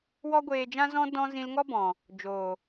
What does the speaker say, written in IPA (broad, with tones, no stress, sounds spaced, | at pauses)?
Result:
w ɔ˦ ɡʷ eː˧ d͡ʒ ã˦ z ɔ̃˦ d ɔ̃˦ z ĩ˧ l ŋ ɔ˦ b ɔ̃˨ | d͡ʒ oː˨